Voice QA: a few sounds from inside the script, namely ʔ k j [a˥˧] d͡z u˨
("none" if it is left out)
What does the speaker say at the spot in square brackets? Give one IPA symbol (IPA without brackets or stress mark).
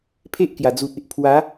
a˨˩